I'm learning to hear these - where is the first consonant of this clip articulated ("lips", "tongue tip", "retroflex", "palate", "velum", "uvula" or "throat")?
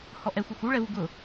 throat